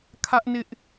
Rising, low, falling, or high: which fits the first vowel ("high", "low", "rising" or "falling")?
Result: high